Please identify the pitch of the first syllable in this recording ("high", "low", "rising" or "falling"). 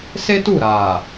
high